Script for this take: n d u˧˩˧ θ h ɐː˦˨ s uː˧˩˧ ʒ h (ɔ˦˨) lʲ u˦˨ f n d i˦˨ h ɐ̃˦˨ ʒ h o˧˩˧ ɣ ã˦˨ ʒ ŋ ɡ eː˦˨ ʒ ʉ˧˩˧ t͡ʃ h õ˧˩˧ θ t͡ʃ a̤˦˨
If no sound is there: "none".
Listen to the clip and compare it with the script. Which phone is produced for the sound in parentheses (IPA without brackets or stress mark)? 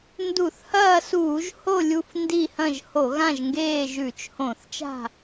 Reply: o˦˨